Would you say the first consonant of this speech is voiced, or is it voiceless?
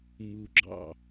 voiced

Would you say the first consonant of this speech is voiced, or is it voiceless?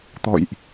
voiceless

